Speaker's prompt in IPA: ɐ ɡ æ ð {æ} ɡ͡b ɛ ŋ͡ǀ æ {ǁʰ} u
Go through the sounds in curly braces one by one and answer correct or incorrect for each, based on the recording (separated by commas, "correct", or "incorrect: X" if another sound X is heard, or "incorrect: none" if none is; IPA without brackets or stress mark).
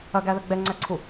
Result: incorrect: ə, incorrect: ǀʰ